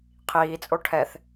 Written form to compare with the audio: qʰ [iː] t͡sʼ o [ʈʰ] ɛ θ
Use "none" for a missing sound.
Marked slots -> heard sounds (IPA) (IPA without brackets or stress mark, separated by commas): iː, ʈʰ